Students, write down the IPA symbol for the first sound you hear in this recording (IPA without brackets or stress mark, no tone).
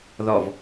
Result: ð